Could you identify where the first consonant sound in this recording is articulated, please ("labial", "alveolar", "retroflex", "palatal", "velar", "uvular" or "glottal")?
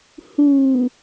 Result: glottal